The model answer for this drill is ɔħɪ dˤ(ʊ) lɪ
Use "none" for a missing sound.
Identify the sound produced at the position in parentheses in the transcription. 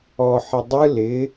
ɯ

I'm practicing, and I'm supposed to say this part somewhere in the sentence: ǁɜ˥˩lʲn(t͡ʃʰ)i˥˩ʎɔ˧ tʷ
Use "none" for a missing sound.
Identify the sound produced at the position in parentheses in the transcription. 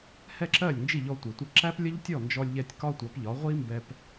d͡ʒ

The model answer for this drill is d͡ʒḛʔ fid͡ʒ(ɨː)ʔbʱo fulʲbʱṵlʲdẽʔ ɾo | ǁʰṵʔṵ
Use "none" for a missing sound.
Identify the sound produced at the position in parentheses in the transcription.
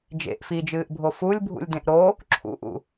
ɨː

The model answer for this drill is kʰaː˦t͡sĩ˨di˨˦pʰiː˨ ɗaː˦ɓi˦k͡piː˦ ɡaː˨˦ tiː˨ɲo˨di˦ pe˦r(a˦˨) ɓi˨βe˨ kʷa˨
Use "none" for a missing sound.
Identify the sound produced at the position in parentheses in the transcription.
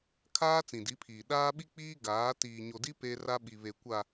a˦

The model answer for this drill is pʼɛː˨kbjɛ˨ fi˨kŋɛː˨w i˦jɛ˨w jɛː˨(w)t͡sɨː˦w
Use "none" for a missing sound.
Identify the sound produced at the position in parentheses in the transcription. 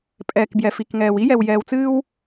w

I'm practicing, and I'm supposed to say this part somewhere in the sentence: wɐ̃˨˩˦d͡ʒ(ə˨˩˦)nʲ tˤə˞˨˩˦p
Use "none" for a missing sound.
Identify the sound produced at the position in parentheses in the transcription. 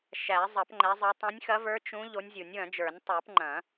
ə˞˨˩˦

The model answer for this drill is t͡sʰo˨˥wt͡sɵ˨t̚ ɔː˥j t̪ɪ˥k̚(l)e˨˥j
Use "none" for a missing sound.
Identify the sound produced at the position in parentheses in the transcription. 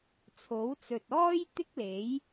l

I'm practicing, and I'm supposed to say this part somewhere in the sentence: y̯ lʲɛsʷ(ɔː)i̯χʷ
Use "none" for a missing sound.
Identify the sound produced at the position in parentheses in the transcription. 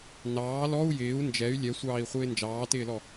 ɑː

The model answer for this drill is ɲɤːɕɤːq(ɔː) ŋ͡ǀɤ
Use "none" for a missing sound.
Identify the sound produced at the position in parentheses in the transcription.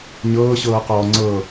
ɔː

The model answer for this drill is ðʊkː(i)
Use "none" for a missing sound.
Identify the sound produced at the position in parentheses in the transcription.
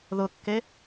e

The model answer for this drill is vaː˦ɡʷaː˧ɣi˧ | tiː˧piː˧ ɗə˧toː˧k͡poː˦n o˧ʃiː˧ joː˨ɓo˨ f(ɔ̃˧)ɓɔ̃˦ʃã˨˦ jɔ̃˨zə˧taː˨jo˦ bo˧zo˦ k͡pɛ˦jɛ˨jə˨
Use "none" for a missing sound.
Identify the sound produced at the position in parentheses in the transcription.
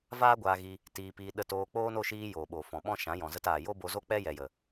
ɔ̃˨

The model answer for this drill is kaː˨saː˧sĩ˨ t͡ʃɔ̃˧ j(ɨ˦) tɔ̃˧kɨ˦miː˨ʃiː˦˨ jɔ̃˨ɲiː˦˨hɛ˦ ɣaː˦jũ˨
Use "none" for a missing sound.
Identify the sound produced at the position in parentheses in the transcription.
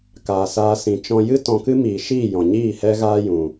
ɨ˦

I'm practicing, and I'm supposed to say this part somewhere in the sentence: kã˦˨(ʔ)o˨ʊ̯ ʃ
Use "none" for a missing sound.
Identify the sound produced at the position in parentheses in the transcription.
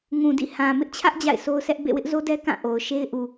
ʔ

